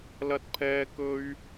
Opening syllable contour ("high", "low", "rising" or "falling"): high